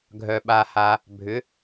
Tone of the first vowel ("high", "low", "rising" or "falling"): low